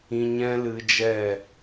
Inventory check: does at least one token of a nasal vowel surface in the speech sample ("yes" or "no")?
yes